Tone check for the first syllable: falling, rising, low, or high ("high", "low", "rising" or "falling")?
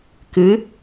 rising